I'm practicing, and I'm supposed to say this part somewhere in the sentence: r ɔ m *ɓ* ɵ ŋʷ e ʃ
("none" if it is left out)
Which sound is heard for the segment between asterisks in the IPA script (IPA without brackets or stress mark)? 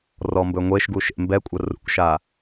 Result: b